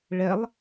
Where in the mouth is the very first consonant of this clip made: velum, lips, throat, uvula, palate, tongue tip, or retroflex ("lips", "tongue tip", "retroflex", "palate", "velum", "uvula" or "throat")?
retroflex